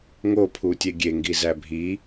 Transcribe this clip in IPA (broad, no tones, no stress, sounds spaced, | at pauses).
ŋ o pʰ u tʲ e ɡʲ e ŋ ɡ i z æ bʱ i